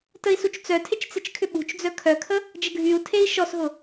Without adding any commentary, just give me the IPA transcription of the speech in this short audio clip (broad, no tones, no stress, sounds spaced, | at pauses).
t ə i̯ s u t͡ʃ t͡s œ tʰ ɪ t͡ʃ t͡s ɪ t͡ʃ kʰ ʏ ɓ ṳ t͡ʃ d͡z œ kʰ œ kʰ ə | d͡ʒ ə ɡʱ y u̯ tʰ e i̯ ʃ ɔ s ɦ ʊ